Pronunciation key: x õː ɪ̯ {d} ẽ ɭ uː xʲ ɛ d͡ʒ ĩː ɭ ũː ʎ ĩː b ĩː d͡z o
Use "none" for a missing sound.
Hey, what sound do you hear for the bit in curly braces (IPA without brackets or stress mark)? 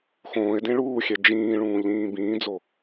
d